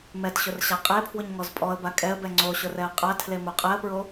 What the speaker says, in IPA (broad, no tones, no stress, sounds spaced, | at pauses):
m ɛ t ɕ ʊ r ɕ a qʼ e pʰ w ʊ ɲ ŋ ɔ z pʼ ɔ ə̯ b a kʼ ɛ ə̯ b ɛ ŋ͡ǀ o ɕ ʊ r ɛ ə̯ qʼ a tʰ l e m o qʼ ɛ ə̯ p ɹ o